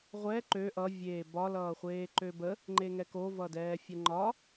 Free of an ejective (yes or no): yes